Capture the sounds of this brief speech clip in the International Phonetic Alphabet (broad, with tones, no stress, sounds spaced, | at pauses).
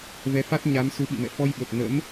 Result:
v ɛ˨˦ f a˦˥ t̚ ɲ a˨˦ m s u˨˦ ɓ ḭ˧˨ m ɛ̰˧˨ f ɔ˧ j ɓ ə˨˩ p̚ n ə̰˧˥ m